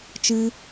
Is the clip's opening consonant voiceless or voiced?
voiceless